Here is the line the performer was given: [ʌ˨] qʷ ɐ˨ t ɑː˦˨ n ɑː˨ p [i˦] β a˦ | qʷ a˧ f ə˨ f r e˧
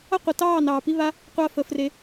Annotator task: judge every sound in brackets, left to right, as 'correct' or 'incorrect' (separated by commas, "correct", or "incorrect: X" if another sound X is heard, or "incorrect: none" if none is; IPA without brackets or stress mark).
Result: incorrect: ʌ˦, correct